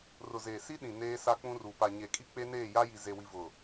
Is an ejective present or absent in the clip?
present